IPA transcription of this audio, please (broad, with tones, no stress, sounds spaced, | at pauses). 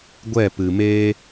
ɡʷ ɛ˦˨ p ɨ˨ m eː˦